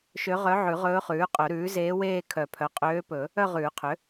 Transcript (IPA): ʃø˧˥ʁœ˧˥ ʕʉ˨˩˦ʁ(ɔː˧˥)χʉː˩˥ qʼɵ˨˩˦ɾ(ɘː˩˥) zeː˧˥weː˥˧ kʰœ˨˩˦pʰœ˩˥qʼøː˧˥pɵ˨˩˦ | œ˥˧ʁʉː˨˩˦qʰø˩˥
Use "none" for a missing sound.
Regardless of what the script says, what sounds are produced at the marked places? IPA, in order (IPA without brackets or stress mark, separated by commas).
ɵː˧˥, ʉː˩˥